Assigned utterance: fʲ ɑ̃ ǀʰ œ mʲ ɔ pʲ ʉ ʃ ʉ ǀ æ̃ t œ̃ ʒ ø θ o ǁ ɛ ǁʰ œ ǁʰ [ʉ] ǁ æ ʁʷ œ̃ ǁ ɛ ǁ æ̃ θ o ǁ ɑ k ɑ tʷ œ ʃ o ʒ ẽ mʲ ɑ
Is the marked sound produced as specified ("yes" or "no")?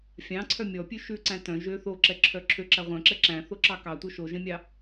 no